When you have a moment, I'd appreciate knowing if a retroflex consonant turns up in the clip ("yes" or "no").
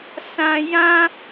no